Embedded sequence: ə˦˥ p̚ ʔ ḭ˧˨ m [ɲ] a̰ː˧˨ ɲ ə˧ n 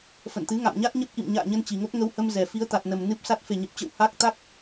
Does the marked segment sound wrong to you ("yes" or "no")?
no